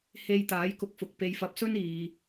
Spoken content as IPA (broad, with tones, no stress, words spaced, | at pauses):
he˧jt̪aː˨˥j kʊ˧k̚fʊ˨k̚ pe˨˧jfɐ˨˥p̚sɵ˥n iː˨